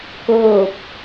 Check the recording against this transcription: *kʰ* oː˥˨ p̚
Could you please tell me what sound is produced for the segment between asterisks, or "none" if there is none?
k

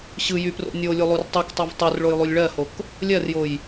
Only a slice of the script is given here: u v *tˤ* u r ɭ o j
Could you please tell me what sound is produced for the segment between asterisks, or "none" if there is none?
tˤ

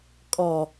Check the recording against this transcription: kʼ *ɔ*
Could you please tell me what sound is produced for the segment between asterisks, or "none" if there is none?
ɔ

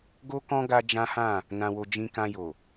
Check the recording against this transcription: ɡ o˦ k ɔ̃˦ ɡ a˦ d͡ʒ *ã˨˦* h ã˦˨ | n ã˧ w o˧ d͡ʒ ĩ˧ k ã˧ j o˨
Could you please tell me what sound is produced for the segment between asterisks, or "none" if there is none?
ã˦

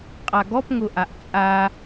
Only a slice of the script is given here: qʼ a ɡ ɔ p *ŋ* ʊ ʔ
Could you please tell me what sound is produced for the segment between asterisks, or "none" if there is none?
ŋ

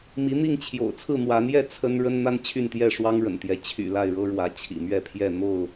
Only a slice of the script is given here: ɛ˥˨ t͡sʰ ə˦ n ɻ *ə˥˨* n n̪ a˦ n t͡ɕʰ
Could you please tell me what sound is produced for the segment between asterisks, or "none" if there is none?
ə˦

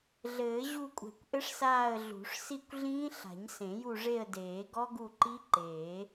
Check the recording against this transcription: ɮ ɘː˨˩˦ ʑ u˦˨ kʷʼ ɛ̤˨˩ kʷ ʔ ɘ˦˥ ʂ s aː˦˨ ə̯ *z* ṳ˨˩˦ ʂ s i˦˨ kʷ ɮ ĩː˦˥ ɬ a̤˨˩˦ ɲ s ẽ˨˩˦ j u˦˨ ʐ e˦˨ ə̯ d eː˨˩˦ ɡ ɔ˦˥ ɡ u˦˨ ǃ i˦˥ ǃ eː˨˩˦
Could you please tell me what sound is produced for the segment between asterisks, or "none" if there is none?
ɮ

